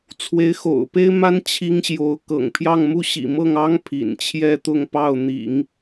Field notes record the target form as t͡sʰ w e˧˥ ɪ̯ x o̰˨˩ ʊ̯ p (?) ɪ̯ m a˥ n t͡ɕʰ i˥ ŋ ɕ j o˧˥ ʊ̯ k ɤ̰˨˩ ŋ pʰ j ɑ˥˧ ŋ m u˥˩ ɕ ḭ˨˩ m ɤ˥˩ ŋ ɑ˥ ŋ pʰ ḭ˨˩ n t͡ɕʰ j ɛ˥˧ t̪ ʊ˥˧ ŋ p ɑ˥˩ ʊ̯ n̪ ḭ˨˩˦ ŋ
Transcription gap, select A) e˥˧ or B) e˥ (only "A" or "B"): B